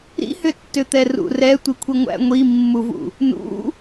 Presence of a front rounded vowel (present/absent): present